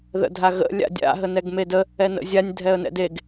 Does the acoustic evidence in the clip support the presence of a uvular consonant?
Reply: no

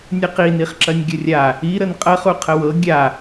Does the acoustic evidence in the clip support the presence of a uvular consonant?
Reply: yes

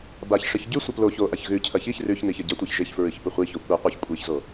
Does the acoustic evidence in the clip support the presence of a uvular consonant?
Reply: yes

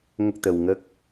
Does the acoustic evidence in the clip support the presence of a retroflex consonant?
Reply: no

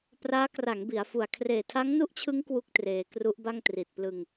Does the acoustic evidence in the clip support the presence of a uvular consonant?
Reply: no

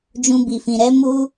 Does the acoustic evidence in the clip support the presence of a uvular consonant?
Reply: no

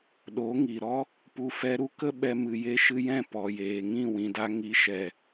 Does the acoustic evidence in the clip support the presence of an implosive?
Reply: yes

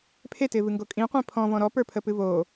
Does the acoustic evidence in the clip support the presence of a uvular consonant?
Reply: yes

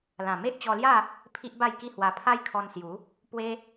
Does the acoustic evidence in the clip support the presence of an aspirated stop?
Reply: yes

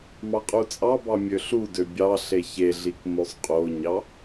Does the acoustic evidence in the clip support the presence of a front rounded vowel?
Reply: yes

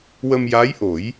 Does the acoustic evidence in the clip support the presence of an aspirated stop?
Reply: no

